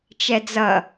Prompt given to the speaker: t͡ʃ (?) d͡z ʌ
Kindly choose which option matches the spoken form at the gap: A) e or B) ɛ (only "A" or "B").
B